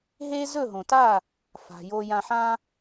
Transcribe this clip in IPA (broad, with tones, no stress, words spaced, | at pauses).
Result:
ɦe˥ zɵ˥˩ɦõ˩ta˥˩ | fa̤˩jo˧jã˧ħã˥